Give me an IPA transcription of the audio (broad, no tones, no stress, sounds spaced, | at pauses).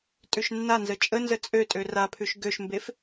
tʼ ʉ ʃ nː a n z ə t͡ʃʼ ə n z ə t͡sʼ ø tʼ ø r a pʰ ʉ ʃ ɡ ø ʃ m b e f